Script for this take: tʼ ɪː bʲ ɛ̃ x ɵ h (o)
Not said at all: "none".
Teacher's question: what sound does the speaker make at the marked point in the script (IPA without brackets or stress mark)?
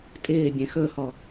ɔ